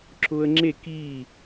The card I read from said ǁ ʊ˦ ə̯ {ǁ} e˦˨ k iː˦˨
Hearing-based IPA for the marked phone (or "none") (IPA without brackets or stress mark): ŋ͡ǁ